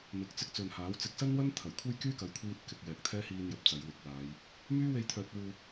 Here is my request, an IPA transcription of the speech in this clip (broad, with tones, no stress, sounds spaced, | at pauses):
m ɪ˨ k̚ t͡s ɪ˧ k̚ t͡s ɵ˨ n h aː˨˥ w t͡s ɪ˨ k̚ s ɐ˥ n w ɐ˥ n t̪ʰ ɐ˨˩ j kʷʰ e˥ j k yː˥ k ɐ˨˧ j kʷʰ iː˧ t̚ k ɪ˨ k̚ j ɛː˨ k̚ t̪ʰ ɛː˥ h iː˧ n j ɐ˨ p̚ t͡s ɐ˨˧ j w ɪ˨˥ k̚ w aː˨˧ j | m yː˥ w e˧ j t̪ʰ œː˨ t̚ w uː˨